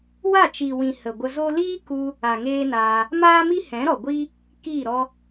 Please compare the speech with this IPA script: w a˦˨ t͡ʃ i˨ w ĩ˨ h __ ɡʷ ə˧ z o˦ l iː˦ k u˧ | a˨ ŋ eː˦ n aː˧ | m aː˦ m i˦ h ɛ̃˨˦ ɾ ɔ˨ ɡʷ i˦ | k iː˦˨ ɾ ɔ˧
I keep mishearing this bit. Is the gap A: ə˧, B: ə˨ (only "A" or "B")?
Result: B